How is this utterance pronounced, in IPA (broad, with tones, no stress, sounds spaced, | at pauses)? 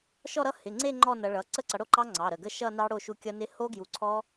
ʃ ɔ˥˧ ɾ ʌ˦˥ h ɪ˩˧˩ ŋ͡ǀ e˥˧ ŋ͡ǃ ɔ˥˧ n ʌ˨˦ ɭ ʌ˩˧˩ ǀ ə˥˧ ǀ ʌ˨˦ ɽ o˥˧ ǃ ɑ˦˥ ŋ͡ǀ ɑ˩˧˩ ɾ ə˩˧˩ ɡ ə˥˧ ʃ ʌ˥˧ n ɑ˦˥ ɽ o˥˧ ʃ u˦˥ kʲ ʌ˦˥ n ɪ˦˥ h o˦˥ ɡ j u˨˦ ǀʰ ɔ˦˥